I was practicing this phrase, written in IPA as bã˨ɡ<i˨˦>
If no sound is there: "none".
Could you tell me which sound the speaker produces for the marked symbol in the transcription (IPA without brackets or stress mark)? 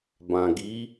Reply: i˨˦